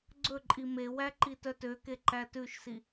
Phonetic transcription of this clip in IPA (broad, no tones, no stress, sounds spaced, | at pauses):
ɡ͡ǀ ɵ ǃʼ i m e w æ ǃ i t œ t ø k e ǃ æ t ʉ ʃ s i